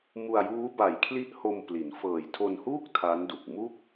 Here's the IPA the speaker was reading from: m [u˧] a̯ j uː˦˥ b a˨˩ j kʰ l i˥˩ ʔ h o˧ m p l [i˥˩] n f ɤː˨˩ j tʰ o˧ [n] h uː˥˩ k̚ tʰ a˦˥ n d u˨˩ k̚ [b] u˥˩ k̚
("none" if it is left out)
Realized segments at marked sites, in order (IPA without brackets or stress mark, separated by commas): u˧, i˩˦, n, m